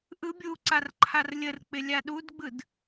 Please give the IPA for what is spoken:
ʔ ɯ bʲ u ǀ a r ǃʰ a r lʲ ə r k͡p ɪ lʲ a ɗ u d ɡ͡b ɯ d

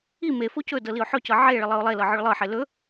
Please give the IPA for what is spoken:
i m e f o c ɵ d ɤ l i ʊ̯ ħ ɵ c ɤ ʕ e ɭ ə lˠ ɤ ʊ̯ lˠ e l ɤ ʕ ɵ ɭ lˠ ɤ ħ e l ɵ

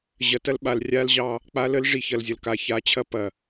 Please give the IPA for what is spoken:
ʑ ɐ˨ t ɐ˦ l ɓ a˨ l rʲ a˦ l ʑ ɑ˦ | k͡p a˦ l ə˦ l ʐ i˨ ç ɐ˨ l zʲ ɐ˨ l k a˨ ç a˨˦ t͡ɕʰ ɐ˦ p ɐ˨

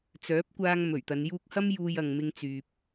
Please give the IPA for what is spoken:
t͡s œː˨˥ p̚ kʷ aː˧ ŋ m ɵ˨˩ ɥ t̪ ɐ˨˧ n j uː˧ k̚ h ɐ˥ m j uː˧ j ɐ˨ ŋ m ɪ˧ ŋ t͡s yː˨ p̚

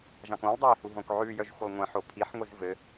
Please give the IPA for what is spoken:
ʒ ɑ̃ k õ lˠ dˤ ɑ ɪ̯ h u ɦ õ k ʕ ʉ j œ ʒ xʷ ɘ lˠ ŋʷ ɛ̃ ħ o pʰ i ħ ŋʷ i z v ɘ

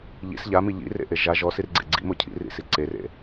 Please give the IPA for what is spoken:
ʎ ḭ s ʎ a m i ʎ ḭ r ḛ ʔ e ʒ a ʒ ɔ s i r ɡ͡ǀ ḛ ɡ͡ǀ ḭ m o cʰ ḭ r ḭ s i ǀ e r ḛ

